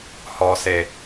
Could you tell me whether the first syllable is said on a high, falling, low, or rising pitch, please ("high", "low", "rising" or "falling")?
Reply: low